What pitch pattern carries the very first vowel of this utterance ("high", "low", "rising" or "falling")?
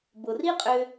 low